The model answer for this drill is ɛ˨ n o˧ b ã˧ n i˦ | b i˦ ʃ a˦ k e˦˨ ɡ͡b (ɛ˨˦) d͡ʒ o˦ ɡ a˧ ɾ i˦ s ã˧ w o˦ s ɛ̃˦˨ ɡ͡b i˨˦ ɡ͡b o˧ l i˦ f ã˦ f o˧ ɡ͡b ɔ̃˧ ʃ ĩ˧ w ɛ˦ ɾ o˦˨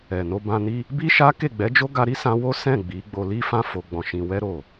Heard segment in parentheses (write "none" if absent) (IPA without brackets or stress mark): ɛ˨˦